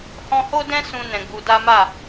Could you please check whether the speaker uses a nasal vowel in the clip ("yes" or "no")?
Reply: yes